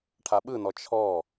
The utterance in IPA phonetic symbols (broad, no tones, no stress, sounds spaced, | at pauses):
ʈʰ a ɓ ɯ n ɔ t͡ʃʰ ɔ